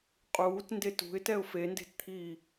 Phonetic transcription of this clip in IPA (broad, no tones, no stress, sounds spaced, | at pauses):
qʼ uː t n d e t ṳ ɪ̯ t ɛ ʊ̯ f e n d e̤ t t̪ʰ iː